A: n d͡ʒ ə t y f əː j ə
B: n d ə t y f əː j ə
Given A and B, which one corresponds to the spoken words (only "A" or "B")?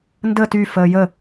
B